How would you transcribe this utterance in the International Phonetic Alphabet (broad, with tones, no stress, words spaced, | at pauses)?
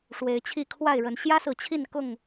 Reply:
ʂwe˨˦ɪ̯t͡ɕʰi˥˨ kʰwa˥˨ɪ̯ɻə˨˦n ɕjä˦sɹ̩˨t͡ɕʰi˥˨nkʊ˥˨ŋ